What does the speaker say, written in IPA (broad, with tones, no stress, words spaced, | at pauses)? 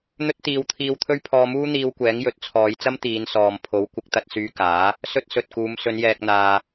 n̪ɵ˥t̚ t̪iː˧wt̪ʰiː˧wt̪ʰɵ˥ɥ pʰɔː˧muː˥n̪iː˧wkʷɛː˨˥ŋ jɵ˨˥t̚t͡sʰɔː˨˧jt͡sɐ˥m t̪iː˨˧nsɔː˨mpʰo˨˥w kʷɪ˨˥k̚t̪ɐ˧t̚syː˧kaː˨˥ | sɵ˥t̚sɵ˨t̚kuː˨˧m sɵ˨˧njɛː˨k̚n̪aː˨